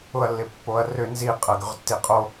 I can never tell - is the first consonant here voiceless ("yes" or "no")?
no